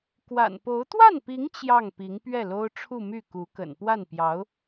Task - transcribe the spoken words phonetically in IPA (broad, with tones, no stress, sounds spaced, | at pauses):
k w a̰˨˩ n p o˧˥ ʊ̯ t̪ w a˥˩ n p i˧˥ ŋ t͡ɕ j ɑ˥˩ ŋ p i˧˥ ŋ p ɥ ɛ˥˩ l o˥ ʊ̯ ʈ͡ʂʰ u˥˧ m y˥˩ k u˧˥ k ə̰˨˩ n p w a˥˩ n p j ɑ˧˥ ʊ̯